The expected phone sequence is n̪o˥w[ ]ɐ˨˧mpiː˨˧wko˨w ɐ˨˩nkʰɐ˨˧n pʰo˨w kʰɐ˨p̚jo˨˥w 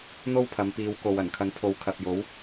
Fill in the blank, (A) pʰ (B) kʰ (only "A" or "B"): A